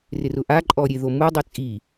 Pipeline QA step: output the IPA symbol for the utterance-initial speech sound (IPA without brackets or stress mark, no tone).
r